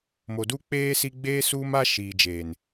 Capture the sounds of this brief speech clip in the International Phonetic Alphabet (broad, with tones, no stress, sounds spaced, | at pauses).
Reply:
m o˨ d u˦ k͡p eː˦ s i˦ ɡ͡b eː˦ s uː˦ m a˦ ʃ iː˨ d͡ʒ eː˨ n